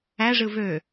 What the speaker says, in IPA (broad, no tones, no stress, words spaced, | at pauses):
æʐɯ vø